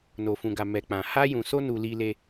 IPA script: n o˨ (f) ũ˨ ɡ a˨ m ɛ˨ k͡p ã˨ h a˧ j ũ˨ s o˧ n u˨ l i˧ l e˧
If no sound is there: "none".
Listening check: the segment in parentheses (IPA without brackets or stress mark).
f